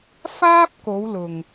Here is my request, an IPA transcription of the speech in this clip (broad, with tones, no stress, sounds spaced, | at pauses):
f aː˥ p̚ k o˨˧ w l ʊ˨ ŋ